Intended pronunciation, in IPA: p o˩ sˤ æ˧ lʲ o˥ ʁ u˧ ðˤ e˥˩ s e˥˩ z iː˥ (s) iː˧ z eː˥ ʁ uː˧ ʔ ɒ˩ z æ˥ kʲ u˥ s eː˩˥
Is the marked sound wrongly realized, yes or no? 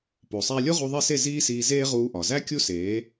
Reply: no